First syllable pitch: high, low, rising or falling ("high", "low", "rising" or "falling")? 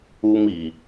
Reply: high